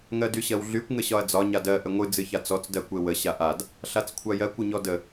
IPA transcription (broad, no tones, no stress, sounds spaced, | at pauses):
ŋ ɜ d y ɕ ɜ w ɮ y kʷ ŋ ə ɕ ɒ ɐ̯ d͡z ɒ ɲ a d ɜ ʔ ə ŋʷ ɨ d͡z ɨ ç a t͡s ɔ t͡s d ɜ kʷ e w ə ɕ a ʔ a d | ɬ a t͡s kʷʰ a j ɜ kʷ ə ɲ ɔ d ə